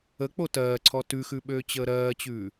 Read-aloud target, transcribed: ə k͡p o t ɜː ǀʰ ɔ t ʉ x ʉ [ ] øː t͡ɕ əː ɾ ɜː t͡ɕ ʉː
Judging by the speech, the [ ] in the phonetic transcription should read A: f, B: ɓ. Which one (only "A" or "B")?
B